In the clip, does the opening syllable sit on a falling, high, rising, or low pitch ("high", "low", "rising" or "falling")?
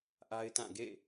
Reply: high